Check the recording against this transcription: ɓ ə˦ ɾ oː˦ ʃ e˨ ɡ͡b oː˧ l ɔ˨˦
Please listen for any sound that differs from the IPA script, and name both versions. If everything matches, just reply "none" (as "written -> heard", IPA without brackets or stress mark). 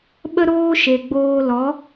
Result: none